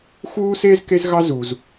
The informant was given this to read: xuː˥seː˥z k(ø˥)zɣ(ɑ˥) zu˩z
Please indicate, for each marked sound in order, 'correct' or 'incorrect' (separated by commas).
incorrect, correct